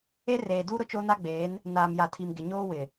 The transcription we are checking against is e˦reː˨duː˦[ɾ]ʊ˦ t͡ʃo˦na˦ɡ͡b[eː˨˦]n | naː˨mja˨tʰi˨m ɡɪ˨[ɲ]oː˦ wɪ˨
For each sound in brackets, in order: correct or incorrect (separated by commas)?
correct, correct, correct